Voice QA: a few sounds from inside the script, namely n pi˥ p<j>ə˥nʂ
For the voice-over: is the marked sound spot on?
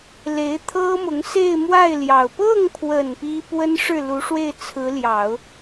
no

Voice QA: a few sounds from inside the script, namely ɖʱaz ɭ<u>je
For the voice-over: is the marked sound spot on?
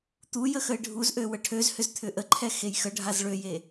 no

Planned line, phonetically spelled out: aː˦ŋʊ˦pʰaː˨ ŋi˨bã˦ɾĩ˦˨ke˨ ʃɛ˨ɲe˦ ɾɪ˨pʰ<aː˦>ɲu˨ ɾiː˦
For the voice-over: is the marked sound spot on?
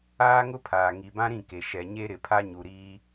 no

